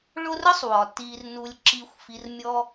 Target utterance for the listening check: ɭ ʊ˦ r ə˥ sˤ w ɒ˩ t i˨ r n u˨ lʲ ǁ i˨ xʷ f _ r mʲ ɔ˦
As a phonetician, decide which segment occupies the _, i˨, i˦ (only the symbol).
i˨